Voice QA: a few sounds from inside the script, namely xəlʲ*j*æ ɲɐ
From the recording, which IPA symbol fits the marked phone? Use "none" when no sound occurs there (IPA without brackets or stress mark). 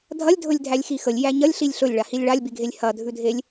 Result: j